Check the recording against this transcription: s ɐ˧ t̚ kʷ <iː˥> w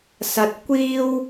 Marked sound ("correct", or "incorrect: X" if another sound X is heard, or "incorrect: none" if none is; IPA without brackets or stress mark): correct